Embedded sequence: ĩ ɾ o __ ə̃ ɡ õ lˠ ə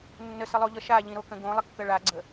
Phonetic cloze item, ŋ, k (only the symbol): k